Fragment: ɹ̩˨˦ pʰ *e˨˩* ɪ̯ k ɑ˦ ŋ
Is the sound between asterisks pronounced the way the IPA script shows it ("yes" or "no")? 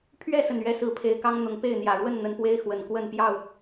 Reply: yes